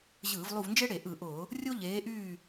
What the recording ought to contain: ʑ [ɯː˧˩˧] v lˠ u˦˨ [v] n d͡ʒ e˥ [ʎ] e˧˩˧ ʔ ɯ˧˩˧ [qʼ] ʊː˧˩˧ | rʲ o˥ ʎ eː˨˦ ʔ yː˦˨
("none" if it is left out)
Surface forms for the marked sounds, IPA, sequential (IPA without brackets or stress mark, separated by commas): ɯː˧˩˧, v, ɽ, ʔ